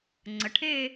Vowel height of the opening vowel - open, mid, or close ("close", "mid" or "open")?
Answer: mid